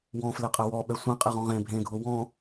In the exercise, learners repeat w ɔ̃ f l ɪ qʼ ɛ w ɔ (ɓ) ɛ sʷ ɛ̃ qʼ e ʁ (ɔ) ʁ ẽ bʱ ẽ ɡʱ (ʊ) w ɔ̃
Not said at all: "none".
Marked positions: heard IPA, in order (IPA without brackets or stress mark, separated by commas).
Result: ɓ, ɔ̃, ʊ